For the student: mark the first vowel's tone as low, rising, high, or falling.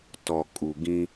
low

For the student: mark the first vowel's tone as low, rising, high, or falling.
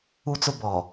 low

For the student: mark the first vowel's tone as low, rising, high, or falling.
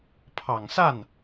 low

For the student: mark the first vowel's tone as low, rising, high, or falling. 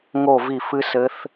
falling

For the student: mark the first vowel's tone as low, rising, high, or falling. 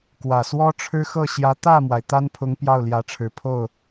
low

